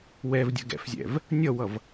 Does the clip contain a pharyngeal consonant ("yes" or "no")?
no